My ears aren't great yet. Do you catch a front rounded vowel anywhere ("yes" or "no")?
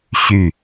yes